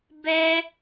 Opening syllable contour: high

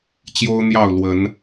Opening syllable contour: high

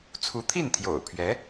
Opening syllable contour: rising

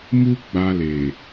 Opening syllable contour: high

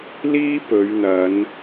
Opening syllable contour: high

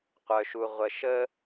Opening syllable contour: low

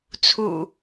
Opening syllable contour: low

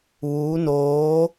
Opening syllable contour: rising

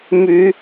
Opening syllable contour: rising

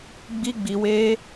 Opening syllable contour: high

